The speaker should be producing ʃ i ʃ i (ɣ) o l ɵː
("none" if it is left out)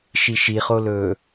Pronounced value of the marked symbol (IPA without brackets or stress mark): χ